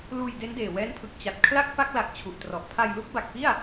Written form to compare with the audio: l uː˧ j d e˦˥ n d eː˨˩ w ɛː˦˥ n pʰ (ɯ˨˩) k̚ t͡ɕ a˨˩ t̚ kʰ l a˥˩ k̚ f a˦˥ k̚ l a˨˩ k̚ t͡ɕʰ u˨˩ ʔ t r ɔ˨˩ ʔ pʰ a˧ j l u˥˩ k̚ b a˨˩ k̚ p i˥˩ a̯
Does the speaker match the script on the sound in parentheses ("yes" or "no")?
yes